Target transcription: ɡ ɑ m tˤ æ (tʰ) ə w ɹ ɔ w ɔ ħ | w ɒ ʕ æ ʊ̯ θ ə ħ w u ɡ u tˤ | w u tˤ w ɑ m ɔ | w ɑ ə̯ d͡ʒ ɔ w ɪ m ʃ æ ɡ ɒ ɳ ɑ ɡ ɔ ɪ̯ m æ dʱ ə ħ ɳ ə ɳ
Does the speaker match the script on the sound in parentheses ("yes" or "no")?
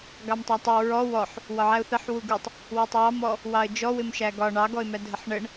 no